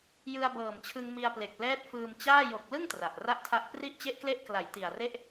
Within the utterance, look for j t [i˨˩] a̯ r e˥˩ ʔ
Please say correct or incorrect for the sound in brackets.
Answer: correct